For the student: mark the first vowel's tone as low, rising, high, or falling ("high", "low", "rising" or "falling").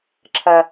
high